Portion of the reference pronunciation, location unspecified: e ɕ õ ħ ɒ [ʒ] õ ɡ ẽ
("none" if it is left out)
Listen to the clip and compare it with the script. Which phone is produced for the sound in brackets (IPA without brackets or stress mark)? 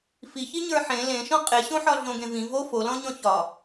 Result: ɮ